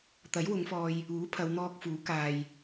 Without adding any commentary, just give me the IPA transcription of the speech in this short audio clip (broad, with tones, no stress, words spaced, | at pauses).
t̪ɐ˨˥jwʊ˨˧ŋfɔː˧j | uː˨˥ pʰɐ˨˧wn̪ɔː˧k̚fuː˨˥ kaː˧j